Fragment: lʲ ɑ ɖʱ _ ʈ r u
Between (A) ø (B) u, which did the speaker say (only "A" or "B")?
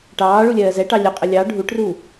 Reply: B